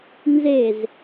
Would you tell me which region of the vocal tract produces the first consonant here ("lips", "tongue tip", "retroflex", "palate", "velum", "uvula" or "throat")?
tongue tip